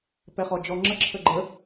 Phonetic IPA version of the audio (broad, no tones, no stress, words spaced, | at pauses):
pɛχɔd͡ʒɔŋ͡ǁə ǁʰəɡ͡ǃə